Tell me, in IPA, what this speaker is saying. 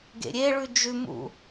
ɡ ḛ ɾʲ e ɭ ʉ d͡ʒ ʉ m ṵ

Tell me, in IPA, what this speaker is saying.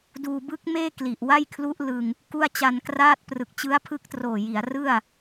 d uː˧ b ɯ˦˥ k̚ m eː˥˩ k l i˨˩ ʔ w a˥˩ j kʰ l u˦˥ ʔ l ɯ˧ ŋ | k u˥˩ a̯ t͡ɕ a˧ n k r aː˥˩ t̚ p r ɯ˨˩ k̚ t͡ɕ ɯ˦˥ a̯ pʰ ɯ˦˥ k̚ t r oː˨˩ j i˩˦ a̯ r ɯ˥˩ a̯

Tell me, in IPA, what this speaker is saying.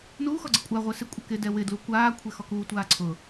n uː x ɔ ɡ͡ǀ ɪ kʷʼ a ʁʷ ɛ s ɪ kʷʼ ɪ k ɪ d ɛ w ɪ d l u kʷ aː kʷʰ ɛ x ɔ k uː tʷ aː ǀʰ ʊ

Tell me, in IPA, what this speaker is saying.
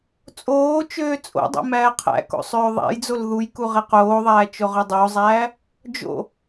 t͡sʼ oː t͡ʃ øː t͡sʼ o̰ dˤ o̰ m æː qʰ æ̰ k o̰ sˤ øː ðˤ æ̰ j d͡z o l ð u j k u ʁ e q oː ðˤ æː t͡ʃ o ʁ ø dˤ o zˤ æː | d͡ʒ o̰

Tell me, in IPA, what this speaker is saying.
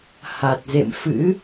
h a˨˩ t̚ z ḛ˧˨ m f ɨ̰˧˥

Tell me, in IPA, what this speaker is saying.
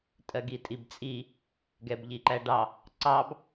tʼ ɜ ɡ i tʼ i b t͡sʼ i | ɡ ɛ b ʎ i ǃ æ ɖ ɑ | ǀ ɑ b

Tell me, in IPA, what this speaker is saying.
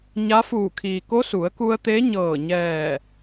ɲ a˧˥ f uː˧˩ kʰ iː˩ k o˧˥ s u˩˧ ə̯ k u˧ ə̯ t̪ e˧˥ ɲ ɤː˧˩ ɲ ɛː˧˩

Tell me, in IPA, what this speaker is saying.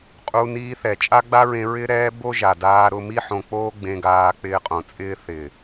qʼ u˧ n iː˧ θ ɛ˨ t͡ʃʼ a˦ ɡ͡b a˦ ɹ ẽ˧ ɹ ɪ˦ ɾ ɛː˦ b o˦ ʒ a˨ d aː˧ ɾ ʊ˧ m i˦ ħ õ˧ k͡p oː˦ ɡ͡b ẽ˧ ɡ aː˧ k͡p ɪː˧ qʼ õ˨ t͡sʼ ɪː˦ θ ɪː˨

